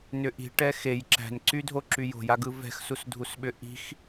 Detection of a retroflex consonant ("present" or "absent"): present